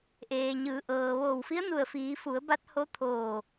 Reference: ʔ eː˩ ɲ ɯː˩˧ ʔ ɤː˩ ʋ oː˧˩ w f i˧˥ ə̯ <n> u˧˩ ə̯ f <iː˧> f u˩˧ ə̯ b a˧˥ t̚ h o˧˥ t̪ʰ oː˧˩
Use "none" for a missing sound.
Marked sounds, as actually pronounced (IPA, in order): n, iː˩˧

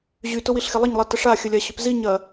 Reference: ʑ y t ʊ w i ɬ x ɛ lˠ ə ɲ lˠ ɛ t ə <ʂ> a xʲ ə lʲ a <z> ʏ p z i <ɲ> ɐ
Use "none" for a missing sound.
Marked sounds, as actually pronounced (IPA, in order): ʂ, ɕ, ɲ

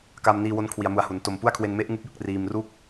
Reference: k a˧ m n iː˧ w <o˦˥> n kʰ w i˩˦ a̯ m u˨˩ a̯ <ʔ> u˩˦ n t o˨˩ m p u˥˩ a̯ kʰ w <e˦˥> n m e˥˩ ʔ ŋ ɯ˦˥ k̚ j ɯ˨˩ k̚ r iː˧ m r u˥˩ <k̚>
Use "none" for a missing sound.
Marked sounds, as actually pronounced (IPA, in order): o˦˥, h, e˧, k̚

